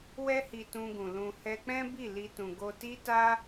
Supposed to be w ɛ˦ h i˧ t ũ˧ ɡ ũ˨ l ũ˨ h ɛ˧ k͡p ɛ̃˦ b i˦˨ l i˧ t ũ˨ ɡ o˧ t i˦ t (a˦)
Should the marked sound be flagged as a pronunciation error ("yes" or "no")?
no